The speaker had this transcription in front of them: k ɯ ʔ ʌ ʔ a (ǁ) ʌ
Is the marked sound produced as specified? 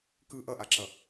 yes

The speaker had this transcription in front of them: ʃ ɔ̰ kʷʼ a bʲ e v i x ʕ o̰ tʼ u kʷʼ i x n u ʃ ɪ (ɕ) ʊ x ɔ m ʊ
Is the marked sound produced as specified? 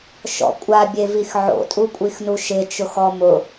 no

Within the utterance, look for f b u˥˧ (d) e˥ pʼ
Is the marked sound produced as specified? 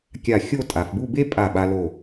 no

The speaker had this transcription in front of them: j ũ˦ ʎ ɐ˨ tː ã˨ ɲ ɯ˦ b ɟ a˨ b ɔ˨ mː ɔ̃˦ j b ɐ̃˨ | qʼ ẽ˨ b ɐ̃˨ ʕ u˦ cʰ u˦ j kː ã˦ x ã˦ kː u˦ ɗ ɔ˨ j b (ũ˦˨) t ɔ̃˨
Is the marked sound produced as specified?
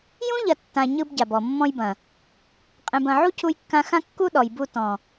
no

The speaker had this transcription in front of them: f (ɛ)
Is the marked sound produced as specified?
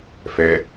yes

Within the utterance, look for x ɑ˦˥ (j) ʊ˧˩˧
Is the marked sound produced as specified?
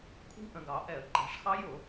yes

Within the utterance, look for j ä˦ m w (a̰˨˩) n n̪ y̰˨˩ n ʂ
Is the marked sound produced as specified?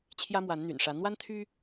no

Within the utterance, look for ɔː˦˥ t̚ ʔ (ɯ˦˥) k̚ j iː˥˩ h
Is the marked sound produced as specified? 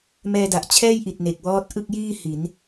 no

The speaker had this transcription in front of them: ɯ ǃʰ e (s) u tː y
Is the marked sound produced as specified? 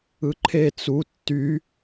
no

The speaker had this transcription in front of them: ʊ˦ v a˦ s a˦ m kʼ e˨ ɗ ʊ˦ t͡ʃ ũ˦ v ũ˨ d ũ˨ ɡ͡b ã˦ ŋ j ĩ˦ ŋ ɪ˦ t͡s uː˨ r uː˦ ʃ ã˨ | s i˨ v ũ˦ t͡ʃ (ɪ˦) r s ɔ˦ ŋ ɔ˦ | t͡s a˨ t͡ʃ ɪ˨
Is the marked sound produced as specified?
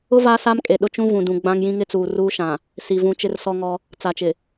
yes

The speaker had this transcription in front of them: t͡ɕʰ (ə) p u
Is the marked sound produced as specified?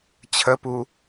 yes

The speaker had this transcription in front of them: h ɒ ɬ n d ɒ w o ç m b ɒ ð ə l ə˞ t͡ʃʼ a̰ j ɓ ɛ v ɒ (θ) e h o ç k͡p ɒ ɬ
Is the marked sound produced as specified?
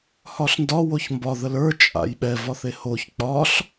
yes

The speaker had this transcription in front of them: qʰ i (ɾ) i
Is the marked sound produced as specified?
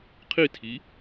no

